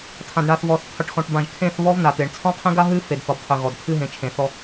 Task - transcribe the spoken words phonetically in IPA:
tʰ ã˨ d ɳ a˨ θ v ɔ˨ θ qʰ ʏ˨ ʈ x ɔ̃˨ ʈ b ã˨ ʒ kʰ ẽ˦˨ θ β ɔ˦ v n a˨ t̪ e˨ ɳ t͡sʰ ɔ̃˦ qʰ ẽ˦ ɡ a˦ ɦ ɨ˦ f e˨ d θ ɔ˨ b qʰ ʏ˨ ɣ ɔ˨ d kʰ ɨ˦ ɦ ẽ˨ t͡ʃʰ ẽ˨ θ ɔ˦

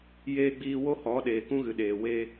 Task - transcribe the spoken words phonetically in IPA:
j eː˧ ɡ͡b iː˧ w o˦ h ɔ˨˦ ɗ eː˨ k ũ˦ ɣ ɨ˨ ɗ eː˨ w eː˧

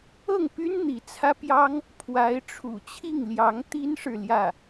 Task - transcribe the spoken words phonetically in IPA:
ɤ˥˩ ŋ p y˥ n n̪ i˧˥ t͡sʰ ä˥ p j ɑ˥ ŋ | pʰ w a˧˥ ɪ̯ ʈ͡ʂʰ ṵ˨˩ t͡ɕʰ i˥˩ ŋ l j ɑ˧˥ ŋ t̪ i˥ n ʂ ɻ̩˨ l j ä˥˩

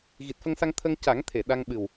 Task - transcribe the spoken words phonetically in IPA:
ɣ i˨˩ t̚ f ə˧ ŋ s a˧ ŋ t̪ʰ ə˧ ŋ c a˨˩˦ ŋ t̪ʰ e˨˩˨ ɗ a˧ ŋ ɓ ɨ˨˩ w

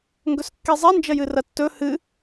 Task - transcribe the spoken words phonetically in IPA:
ŋ ɡ ɵ s kː i zˤ e n d͡ʒ ɐ j ɨ r ɐ tː ɵ h ɨ

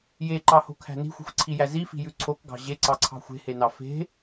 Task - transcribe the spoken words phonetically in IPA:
j e ǃ ɑ h o̤ kʰ æ̤ n i̤ xʷ i̤ xʷ ǀʰ i j æ z i f i̤ j ʉ ǀʰ o k ɡ ɑ̤ ʑ e ǀ ɑ ǀʰ ɑ̤ xʷ e̤ h e n ɑ f e̤

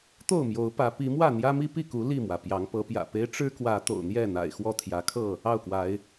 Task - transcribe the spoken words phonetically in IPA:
t̪ o˥˨ ʊ̯ m j o˨˦ ʊ̯ p ä˨˦ p i˨˦ m w ä˥˨ n̪ j ä˦ m i˦ p i˥˨ k u˨˦ l i˥˨ m w ä˩ p j ɑ˨˦ ŋ p ɤ˨˦ p j ä̰˨˩ p e˦ ɪ̯ ʈ͡ʂ ɻ̩˦ k w ä˨˦ t̪ o̰˨˩ ʊ̯ n̪ j ɛ˥˨ n̪ a̰˨˩ ɪ̯ x w ɔ˥˨ t̪ʰ j ä˨˦ kʰ ɤ˥˨ | ɑ˥˨ ʊ̯ k w a˨˦ ɪ̯

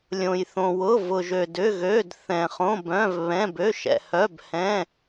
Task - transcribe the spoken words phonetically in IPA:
lʲ õ˧ j θ õ˧ w ʊ˧˥˧ v ʊ˧ ʒ ø˧ d ʏ˧˥˧ ɣ ø˧˥˧ d θ ɛ̃˧ χ õ˧˥˧ b œ̃˧˥˧ v β ɛ̃˧˥˧ b ø˧˥˧ ʃ ɛ̰˧ h œ˧˥˧ b h ɛ̃˧˥˧

